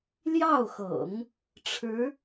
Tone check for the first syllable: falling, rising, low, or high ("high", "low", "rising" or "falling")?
falling